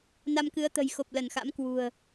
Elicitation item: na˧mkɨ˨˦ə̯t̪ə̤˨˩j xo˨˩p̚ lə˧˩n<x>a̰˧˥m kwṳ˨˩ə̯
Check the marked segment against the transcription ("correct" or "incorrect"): correct